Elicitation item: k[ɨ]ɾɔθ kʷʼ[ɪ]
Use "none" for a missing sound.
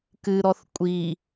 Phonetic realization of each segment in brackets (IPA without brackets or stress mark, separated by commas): ɨ, i